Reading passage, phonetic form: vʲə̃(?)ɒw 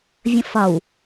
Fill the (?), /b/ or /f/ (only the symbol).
f